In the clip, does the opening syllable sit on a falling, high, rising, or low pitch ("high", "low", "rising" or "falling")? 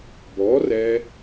rising